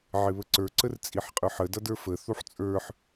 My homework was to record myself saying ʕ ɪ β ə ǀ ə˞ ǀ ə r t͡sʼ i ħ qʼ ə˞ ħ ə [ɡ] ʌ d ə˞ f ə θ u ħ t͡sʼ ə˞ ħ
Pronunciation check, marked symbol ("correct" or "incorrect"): incorrect